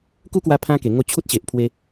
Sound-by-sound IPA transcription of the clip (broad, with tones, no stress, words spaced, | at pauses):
ku˦kwa˧ pʰã˦ke˨˩ŋo˦ t͡ɕʰu˦t̚ɕe˨ʔpʰwe˧